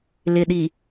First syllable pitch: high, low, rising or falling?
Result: low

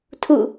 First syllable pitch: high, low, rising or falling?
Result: falling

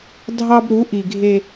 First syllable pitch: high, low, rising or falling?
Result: high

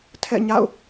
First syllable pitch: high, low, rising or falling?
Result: falling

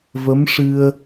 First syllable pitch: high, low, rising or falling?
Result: rising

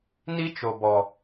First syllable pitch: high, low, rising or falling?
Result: high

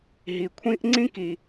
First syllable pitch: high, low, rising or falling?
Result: low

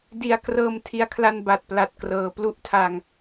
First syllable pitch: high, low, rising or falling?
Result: low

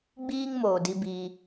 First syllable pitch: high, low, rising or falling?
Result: high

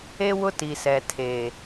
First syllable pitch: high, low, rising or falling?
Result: high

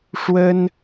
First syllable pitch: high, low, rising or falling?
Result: high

